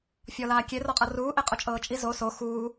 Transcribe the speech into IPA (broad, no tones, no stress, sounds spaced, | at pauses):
fʲ ɔ l aː kʲ e r ɔ qʼ ɤ r uː ʔ e qʼ o t͡ʃʼ ɤː t͡ʃʼ i z o s o x uː